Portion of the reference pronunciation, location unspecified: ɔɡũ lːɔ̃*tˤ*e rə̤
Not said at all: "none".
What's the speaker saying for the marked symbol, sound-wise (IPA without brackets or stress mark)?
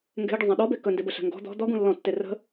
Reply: tː